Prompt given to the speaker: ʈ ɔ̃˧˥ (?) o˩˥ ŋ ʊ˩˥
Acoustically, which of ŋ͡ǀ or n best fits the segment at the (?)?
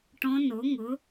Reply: n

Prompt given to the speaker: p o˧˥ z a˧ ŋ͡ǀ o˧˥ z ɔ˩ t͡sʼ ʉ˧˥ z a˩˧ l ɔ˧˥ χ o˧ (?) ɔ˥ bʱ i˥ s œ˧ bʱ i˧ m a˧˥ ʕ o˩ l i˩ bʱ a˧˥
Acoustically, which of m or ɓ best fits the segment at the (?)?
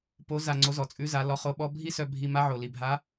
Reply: ɓ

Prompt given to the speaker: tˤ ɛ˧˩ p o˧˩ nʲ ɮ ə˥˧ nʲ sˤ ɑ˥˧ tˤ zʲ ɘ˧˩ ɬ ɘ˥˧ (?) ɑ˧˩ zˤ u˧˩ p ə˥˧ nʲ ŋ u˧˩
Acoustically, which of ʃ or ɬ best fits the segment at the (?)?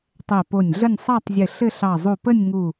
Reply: ɬ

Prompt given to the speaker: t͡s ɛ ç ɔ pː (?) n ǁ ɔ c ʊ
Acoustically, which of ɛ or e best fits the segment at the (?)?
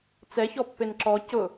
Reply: e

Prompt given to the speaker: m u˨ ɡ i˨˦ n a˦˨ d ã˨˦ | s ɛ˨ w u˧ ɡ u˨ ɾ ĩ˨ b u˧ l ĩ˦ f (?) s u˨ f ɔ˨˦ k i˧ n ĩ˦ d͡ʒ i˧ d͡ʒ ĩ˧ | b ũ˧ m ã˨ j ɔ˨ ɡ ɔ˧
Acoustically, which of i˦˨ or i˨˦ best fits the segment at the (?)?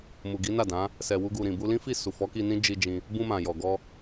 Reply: i˦˨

